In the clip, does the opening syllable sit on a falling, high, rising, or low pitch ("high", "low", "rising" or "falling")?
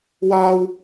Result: high